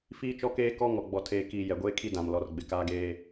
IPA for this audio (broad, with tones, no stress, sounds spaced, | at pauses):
f iː˦ t͡ʃ ɔ˦ k eː˦ k ɔ˦ ŋ ɔ˨ ɡ͡b ɔ˨ tʰ eː˨ k iː˨ j ɛ˨ ɡʷ eː˦ kʰ i˦ d ã˨ m l ɔ˨ r ɡ͡b ɪ˨ k aː˦ ɡ eː˦